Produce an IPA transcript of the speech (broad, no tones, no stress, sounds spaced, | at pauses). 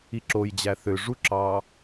i ǁ o j d͡ʑ æ θ ø ʐ u ǁ ɑ